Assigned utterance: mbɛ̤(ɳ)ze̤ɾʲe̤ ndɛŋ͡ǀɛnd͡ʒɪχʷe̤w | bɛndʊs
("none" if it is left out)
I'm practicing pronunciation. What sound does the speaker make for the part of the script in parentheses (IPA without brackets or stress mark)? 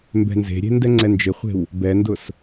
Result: n